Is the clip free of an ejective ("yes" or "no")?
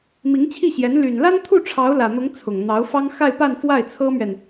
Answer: yes